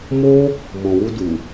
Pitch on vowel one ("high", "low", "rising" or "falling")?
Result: high